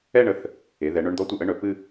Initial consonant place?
retroflex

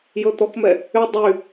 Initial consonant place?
palatal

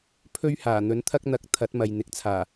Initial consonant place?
labial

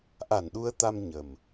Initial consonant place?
glottal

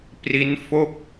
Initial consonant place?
labial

